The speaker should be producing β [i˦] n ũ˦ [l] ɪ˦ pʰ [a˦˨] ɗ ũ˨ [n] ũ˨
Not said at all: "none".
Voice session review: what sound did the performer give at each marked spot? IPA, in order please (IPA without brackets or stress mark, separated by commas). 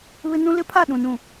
ɪ˦, l, a˦˨, n